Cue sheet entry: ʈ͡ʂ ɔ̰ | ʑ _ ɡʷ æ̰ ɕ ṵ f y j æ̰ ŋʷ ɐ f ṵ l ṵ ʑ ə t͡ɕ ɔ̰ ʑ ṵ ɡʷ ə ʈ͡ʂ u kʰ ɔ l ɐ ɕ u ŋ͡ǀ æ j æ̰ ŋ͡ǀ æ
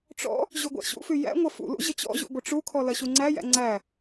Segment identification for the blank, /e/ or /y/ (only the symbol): y